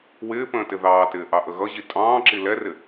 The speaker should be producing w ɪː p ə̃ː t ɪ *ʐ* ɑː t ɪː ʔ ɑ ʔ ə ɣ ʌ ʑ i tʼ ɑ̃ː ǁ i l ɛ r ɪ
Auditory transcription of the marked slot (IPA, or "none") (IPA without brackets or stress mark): ð